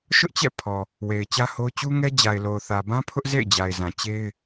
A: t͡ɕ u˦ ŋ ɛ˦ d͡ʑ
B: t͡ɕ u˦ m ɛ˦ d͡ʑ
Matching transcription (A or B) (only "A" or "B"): A